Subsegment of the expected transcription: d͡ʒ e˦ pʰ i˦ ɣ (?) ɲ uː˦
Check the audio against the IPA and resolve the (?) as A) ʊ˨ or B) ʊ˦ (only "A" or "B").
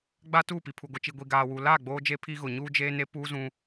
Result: A